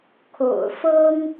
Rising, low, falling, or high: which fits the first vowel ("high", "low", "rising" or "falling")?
low